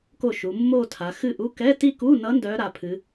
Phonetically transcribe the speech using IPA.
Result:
ko˥˩ʃu˩˧ mːo˥˧tʰa˩˧ xɨ˥˩ʔu˧˥˧ kɛ˧˥˧ti˥˧ku˧˥˧nʌ˧˥ ndœ˧˥ɾa˩˧pʰɨ˩˧

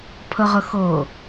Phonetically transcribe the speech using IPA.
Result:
pʰəʁəxɤ

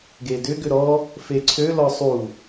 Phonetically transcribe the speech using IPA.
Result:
ɡedʏ ɡʏɾɔ | feǀʰø lɔsˤu

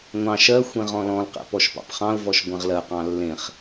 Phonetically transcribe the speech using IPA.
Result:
ŋʷɑ̃ ʃɜxʷẽ ʁɔ̃lɔ̃lqɛ̰ pɔʃpɑ̰pχɑ̃ʊ̯vɔʃ ɡʷɛ̃ʁlɜqɑ̃ lːẽχ

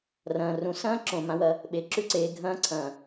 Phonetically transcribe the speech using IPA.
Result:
rɐ̃ː˩rũ˩˧sɐ̃ː˥ ǁõ˩ mã˧wɐ˧ | ɓe˩˧ǁʉ˧ǀeː˩˧ ɡʱɐ̃ː˧˥ǀʰɐ̃ː˩

